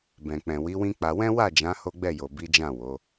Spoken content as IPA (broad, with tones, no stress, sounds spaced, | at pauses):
b ɛ̃˨ k͡p ɛ̃˨ w i˨˦ w ĩ˦ k͡p a˧ w ɛ̃˦ w a˦˨ d͡ʒ ã˨˦ h o˦ ɡ͡b ɛ˦˨ j o˨ b i˨˦ d͡ʒ ã˦˨ w o˨˦